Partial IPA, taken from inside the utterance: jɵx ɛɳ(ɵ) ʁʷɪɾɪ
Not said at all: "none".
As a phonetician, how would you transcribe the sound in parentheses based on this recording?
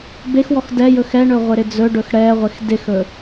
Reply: ɵ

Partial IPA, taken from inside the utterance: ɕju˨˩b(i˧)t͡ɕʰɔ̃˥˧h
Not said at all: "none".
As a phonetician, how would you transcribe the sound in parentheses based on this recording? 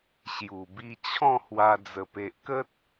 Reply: i˧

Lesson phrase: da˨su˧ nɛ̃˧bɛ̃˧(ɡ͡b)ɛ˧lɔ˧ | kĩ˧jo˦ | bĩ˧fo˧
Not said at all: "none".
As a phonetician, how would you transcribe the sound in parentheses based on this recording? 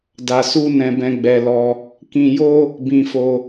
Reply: ɡ͡b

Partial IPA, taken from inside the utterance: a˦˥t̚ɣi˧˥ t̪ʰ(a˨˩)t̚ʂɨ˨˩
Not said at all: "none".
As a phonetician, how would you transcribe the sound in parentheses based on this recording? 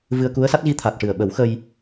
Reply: a˨˩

